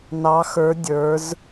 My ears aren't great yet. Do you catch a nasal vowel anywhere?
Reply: no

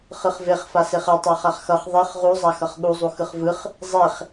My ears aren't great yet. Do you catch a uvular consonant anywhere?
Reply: yes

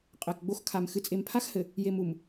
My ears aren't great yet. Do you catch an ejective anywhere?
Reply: yes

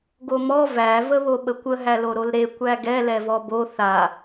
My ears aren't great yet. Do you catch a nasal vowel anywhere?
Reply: no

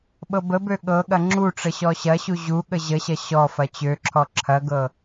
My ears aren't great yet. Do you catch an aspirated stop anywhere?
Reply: yes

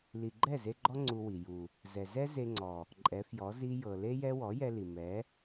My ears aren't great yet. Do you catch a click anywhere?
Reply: yes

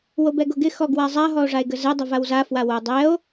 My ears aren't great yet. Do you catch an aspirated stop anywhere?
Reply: no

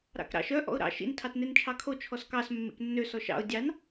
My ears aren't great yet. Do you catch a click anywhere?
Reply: no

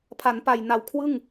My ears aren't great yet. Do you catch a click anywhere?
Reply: no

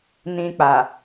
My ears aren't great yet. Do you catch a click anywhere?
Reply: no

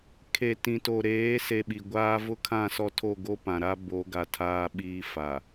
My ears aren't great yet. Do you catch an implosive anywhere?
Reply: yes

